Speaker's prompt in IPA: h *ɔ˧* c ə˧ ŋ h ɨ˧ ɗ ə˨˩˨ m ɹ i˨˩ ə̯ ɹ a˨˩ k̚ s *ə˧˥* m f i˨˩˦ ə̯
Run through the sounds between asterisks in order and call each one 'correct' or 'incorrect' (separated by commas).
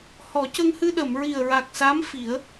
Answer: incorrect, incorrect